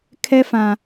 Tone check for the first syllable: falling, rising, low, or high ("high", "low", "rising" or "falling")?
high